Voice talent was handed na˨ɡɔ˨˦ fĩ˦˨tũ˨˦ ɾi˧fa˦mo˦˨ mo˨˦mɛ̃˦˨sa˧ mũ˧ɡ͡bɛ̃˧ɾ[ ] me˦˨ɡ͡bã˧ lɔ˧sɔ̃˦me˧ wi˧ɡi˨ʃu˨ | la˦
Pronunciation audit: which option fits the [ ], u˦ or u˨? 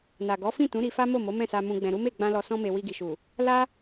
u˦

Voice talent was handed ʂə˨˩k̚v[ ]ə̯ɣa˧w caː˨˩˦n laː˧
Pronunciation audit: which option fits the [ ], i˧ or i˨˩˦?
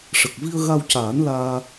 i˧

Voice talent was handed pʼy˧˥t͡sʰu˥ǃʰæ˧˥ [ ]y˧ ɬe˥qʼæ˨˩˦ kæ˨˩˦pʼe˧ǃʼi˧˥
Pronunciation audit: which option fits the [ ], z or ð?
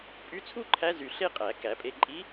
z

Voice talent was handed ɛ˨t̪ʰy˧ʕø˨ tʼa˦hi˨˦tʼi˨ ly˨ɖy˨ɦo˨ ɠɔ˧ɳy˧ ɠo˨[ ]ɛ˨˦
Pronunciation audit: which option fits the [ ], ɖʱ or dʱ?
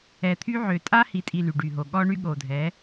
dʱ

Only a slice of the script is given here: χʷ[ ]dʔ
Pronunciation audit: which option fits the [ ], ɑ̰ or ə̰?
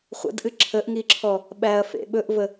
ə̰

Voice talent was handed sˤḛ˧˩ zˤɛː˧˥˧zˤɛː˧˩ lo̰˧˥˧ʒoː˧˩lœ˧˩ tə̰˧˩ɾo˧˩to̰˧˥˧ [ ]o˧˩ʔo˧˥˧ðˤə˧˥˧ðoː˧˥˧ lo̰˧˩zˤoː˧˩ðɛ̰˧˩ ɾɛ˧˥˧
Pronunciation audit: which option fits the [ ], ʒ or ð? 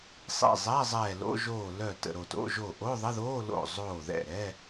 ʒ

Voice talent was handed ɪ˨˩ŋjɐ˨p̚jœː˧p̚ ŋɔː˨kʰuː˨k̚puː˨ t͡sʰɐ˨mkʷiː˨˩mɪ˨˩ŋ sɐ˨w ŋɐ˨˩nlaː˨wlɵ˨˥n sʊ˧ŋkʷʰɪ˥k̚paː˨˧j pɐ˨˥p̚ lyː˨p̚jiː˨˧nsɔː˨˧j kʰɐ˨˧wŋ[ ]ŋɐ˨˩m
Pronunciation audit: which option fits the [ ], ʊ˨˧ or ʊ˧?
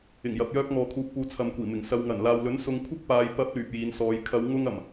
ʊ˧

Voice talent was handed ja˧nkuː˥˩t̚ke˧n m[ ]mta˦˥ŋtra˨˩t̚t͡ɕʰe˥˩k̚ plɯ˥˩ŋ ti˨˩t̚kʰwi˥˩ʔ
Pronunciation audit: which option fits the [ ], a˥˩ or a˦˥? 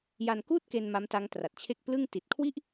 a˦˥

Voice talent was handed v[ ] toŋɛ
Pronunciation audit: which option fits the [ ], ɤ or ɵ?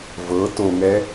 ɤ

